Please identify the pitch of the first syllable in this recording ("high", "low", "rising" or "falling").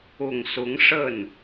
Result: low